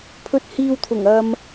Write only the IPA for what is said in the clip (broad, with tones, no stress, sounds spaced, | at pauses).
pʰ ɵ˨ t̚ h iː˨ w t̪ʰ ʊ˨˩ ŋ ɐ˧ m